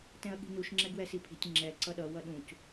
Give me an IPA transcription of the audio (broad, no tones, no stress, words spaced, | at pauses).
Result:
tɛ̃ɐ̯ɠi̤nuʃ ŋ͡ǁɛɡwɛsipʰi̤tʲ ŋ͡ǁɛ ǀʌɗʌ wʌɗũc